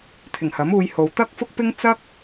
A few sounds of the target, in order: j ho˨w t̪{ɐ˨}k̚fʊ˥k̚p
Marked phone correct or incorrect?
incorrect